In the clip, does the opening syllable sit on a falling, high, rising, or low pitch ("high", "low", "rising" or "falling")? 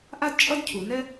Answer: high